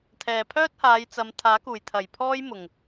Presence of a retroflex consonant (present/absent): absent